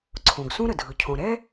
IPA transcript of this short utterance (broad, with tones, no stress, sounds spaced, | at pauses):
ǀʰ õ˩ ɡ s ũ˥ ɾ ə˩ dʱ ɯ˩ cʰ õ˩ ɾ ɛ˥